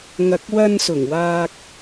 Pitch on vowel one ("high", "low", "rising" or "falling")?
low